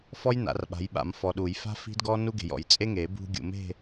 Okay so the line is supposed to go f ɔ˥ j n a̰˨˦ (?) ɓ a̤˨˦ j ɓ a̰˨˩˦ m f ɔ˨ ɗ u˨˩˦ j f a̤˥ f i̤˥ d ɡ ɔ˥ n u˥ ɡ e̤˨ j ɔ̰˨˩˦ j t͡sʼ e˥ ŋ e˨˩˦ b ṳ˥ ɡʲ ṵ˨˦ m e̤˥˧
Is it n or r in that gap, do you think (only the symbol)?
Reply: r